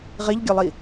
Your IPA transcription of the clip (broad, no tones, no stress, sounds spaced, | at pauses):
ʁ i ʎ ɡʲ ɵ lˠ i